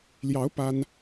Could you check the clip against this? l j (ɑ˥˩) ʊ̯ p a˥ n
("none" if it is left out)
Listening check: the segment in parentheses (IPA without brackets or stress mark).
ɑ˧˥